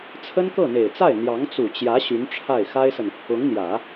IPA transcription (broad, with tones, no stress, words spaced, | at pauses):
t͡sʰə˥nkɤ˥˩n̪e˨˩ɪ̯t͡sa˥˩ɪ̯ n̪jɑ˧˥ŋt͡su˨˩t͡ɕjä˧˥ ɕy˧˥nʈ͡ʂʰa˥˩ɪ̯ xa˥ɪ̯sə˨n | ʊ˧˥ŋn̪jä˨˩˦